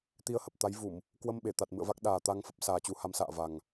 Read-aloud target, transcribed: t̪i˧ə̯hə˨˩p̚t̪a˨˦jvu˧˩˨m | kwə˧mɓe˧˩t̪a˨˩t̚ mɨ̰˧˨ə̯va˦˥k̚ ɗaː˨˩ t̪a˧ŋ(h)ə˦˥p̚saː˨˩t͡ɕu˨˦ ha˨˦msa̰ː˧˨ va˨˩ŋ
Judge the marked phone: incorrect: f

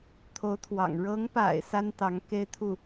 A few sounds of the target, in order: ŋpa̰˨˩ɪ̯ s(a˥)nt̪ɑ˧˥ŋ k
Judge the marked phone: correct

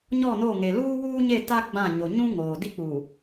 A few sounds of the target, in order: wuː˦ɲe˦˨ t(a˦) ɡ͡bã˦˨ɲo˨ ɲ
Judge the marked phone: correct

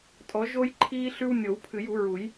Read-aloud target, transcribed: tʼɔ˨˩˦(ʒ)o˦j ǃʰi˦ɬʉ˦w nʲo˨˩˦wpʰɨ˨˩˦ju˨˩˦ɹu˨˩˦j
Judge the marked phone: correct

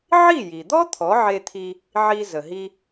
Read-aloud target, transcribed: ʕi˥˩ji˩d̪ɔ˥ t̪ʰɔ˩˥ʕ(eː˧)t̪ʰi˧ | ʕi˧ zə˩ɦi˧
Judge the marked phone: incorrect: e˧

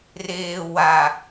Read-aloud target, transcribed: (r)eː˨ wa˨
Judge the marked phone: correct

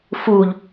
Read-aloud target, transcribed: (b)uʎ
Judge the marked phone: incorrect: f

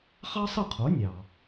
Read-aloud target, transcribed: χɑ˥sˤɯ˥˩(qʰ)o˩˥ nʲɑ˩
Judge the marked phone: correct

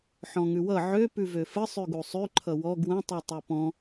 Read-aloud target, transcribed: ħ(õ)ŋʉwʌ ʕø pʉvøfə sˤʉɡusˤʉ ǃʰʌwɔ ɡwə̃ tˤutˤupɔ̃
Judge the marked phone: incorrect: ɔ̃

